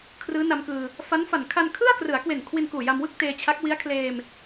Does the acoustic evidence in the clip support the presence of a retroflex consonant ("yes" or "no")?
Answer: no